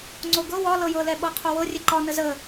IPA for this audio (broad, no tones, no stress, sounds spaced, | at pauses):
ŋ͡ǀ o ɡ ɤ w ɒ l ɤ j ɤ l ɛ ɓ ɤ qʰ o w ɤ rʲ ɛ ǃ ɒ n ə z ə